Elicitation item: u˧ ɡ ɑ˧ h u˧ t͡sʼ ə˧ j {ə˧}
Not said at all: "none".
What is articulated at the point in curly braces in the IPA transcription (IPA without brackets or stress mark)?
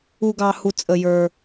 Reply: ə˞˧